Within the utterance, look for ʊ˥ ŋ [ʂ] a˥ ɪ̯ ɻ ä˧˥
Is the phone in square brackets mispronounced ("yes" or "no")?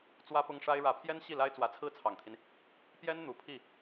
no